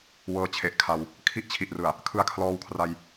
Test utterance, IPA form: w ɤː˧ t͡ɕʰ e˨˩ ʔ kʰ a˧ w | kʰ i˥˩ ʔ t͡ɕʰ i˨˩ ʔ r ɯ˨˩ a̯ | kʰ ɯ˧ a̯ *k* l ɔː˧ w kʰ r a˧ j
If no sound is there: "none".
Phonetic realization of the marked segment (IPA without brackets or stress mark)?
kʰ